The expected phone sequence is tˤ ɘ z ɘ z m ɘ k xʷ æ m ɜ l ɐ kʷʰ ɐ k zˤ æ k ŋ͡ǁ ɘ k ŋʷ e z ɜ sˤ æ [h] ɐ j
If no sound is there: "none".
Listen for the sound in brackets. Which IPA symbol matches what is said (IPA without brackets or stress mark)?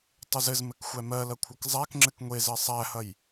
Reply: h